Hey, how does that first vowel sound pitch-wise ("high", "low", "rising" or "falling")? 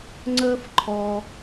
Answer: high